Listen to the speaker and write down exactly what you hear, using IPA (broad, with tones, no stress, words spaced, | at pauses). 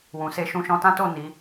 wũ˨ se˧ ʃũ˧ʃɔ̃˧tã˦to˦˨ ni˨˦